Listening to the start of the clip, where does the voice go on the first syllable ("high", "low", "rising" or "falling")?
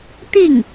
falling